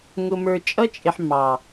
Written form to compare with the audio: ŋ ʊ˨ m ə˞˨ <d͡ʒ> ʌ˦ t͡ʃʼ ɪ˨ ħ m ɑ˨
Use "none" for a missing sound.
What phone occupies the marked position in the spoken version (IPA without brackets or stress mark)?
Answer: t͡ʃʼ